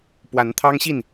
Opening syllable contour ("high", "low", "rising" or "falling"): rising